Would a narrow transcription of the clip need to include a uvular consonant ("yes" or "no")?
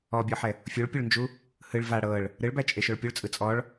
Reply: no